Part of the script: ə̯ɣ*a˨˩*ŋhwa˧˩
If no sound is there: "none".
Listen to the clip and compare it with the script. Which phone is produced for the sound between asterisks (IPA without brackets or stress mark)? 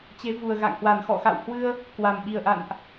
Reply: a̰˧˨